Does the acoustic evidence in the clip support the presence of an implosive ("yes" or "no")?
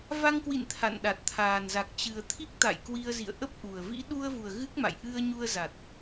yes